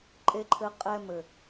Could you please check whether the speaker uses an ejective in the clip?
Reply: yes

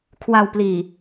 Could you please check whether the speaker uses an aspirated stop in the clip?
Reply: yes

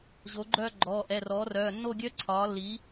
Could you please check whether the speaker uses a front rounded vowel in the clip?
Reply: yes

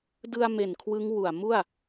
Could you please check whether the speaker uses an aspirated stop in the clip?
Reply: yes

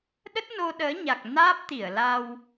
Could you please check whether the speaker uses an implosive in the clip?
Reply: yes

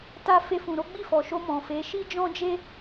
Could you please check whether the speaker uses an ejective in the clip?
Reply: no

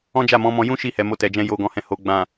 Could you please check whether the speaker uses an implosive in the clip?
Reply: no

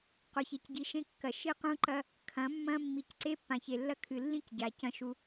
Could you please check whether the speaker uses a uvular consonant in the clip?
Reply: yes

